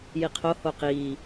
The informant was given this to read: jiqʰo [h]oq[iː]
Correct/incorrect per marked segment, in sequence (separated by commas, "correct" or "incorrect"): correct, correct